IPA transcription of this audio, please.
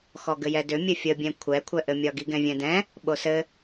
xɔɡɘjɛdʏ mʲɘfʲəbʲɛ̃ kʷʰɛkʷʰɛʔɘmʲɒ ɡiɡɛ̃vʲɛ̃dɛ̃ | ɓosɘ

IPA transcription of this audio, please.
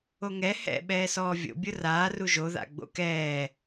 oŋɛ hɛ̰ ɓɛːsɔːvʲo̰ bʲʊraː ruʒo ða̰ɡ͡bo̰kɛː

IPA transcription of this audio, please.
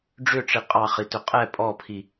ɖ͡ʐʏʈ͡ʂi qʼɑχitʏ qʼɛ pʼɔpʰi

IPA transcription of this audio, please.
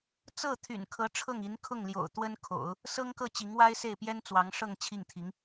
t͡sɤ˥˩t̪ʰy̰˨˩nkʰɤ˧˥ ʈ͡ʂʰɤ˥˩ŋi˧˥n kʰʊ˥˩ŋljo̰˨˩ʊ̯ t̪wə˥nkʰo̰˨˩˦ʊ̯ | sɤ˥ŋkɤ˥˩ t͡ɕi˧˥ŋwa˥ɪ̯se˥˩ɪ̯ pjɛ˥n t͡swɑ˧˥ŋʂɤ˥˧ŋ t͡ɕʰi˥˩ŋt̪ʰi˧˥ŋ

